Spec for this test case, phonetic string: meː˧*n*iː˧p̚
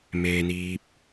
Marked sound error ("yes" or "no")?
no